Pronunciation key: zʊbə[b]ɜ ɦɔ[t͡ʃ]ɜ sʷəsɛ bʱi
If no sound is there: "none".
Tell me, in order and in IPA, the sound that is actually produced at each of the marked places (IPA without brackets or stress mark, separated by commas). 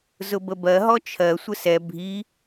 b, t͡ʃʰ